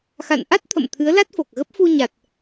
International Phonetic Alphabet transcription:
x a̰˧˨ n ʔ a˦˥ t̚ t̪ʰ ə̰˧˨ m t̪ʰ ɨ˨˦ ə̯ l a˦˥ t̚ f o˨˩ k̚ ɣ ə˦˥ p̚ f u˧ ɲ a˨˩ t̚

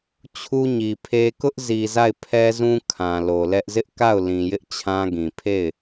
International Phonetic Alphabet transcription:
t͡ɕʰ u˦ ɲ i˨ pʰ e˦ k ʊ˦ ʔ z i˨ z a˦˨ ɪ̯ pʰ ɛ˦ z ũ˦ kʰ ã˨ l o˨ l ɛ˦ ʔ z ɪ˦ ʔ k a˦˨ ʊ̯ l ĩ˨ j ɪ˦ ʔ t͡ɕʰ ã˦ ɡ ĩ˨ pʰ e˦˨ ɪ̯

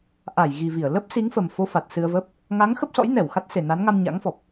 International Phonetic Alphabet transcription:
ʔ a˧˩ j ɣ i˨˩ v i˧˩ ə̯ l ə˦˥ p̚ s i˨˦ ŋ f ə˨˩ m f o˧ f a˨˩ t̚ s ɨ˧ ə̯ v ə˦˥ p̚ | ŋ a˨˦ ŋ x ə˦˥ p̚ s ɔ̰˧˥ j n ɛ˧˩ w x a˦˥ t̚ s e˨˩ n a˨˦ n ŋ a˧ m ɲ a̰˧˥ ŋ f ɔ˨˩ p̚

